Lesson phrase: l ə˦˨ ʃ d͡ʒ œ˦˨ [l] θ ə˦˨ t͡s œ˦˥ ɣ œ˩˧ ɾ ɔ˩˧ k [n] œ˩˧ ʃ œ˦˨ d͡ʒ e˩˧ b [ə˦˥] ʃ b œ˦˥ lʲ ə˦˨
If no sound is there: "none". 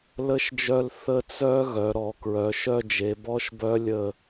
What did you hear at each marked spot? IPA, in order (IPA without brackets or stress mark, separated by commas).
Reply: l, ɹ, ɔ˦˥